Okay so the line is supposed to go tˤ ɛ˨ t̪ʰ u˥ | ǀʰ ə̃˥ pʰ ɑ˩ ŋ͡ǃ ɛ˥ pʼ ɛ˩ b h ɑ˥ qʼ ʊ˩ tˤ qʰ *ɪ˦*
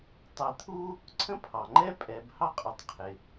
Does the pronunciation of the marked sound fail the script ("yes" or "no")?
yes